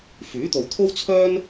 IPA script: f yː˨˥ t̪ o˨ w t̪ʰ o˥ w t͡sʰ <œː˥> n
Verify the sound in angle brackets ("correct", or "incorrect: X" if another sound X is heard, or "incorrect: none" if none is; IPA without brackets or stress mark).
correct